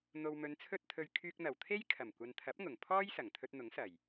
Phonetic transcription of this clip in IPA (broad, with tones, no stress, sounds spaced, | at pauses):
n̪ o˨ w m ɵ˨˧ n t͡sʰ ɵ˥ t̚ t̪ʰ ɵ˧ ɥ kʰ yː˧ k̚ n̪ ɐ˨˩ w t̪ʰ e˥ j kʰ ɐ˨˩ m kʷ ɐ˨ n t̪ʰ ɐ˨˥ p̚ ŋ ʊ˨˩ ŋ pʰ ɔː˥ j s ɐ˨˩ ŋ t̪ʰ ɵ˧ t̚ n̪ ʊ˨˥ ŋ s ɐ˨˩ j